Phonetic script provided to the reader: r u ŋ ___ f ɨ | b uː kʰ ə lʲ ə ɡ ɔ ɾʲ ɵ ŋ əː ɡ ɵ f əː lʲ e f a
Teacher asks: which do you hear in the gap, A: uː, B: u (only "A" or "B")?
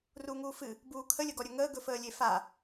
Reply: A